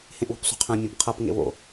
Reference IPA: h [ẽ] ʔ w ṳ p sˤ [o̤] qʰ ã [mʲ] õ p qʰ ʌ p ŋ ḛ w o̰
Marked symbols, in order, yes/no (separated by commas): yes, yes, yes